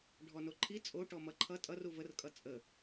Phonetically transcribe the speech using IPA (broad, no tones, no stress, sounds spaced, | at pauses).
ɖʱ ɔ n o ǃʰ i t͡sʼ o ʈ ɔ m ʌ ǃʰ ʌ tʼ ʌ r u v ə r kʼ ʌ t͡sʼ ə